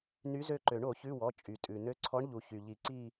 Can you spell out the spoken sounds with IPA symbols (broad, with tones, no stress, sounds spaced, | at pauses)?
n y˧˥ z ø˦˨ ǃ ø˨˩˦ ɳ o˨˩˦ ç ʉ˧˥˧ w ɔ˩˧˩ t͡ʃʼ y˩ tʼ ʉ˩ n ø˧˥ ǀʰ ɔ˧˥ ɳ ʎ u˩ ç y˩ ʎ i˨˩˦ ǀ i˦˨